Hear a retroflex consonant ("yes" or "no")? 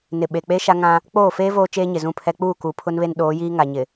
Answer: no